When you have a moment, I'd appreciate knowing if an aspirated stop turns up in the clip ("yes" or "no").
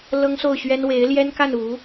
no